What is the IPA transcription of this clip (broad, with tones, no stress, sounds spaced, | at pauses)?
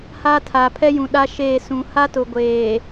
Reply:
h a˦ tʰ a˨ pʰ ɛ˦ j ũ˨ ɗ a˦ ʃ eː˦˨ s ũ˨ h a˦ t ʊ˨ ɡʷ eː˨